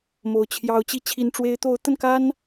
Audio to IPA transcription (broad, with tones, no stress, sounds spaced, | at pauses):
m o˨˩ ʊ̯ t͡ɕʰ j ɑ˨˦ ʊ̯ t͡ɕ i˨˦ t͡ɕʰ i˨˩ n ʈ͡ʂ w e˨˦ ɪ̯ t̪ o˨˦ ʊ̯ t̪ ə˧ n k a˦ n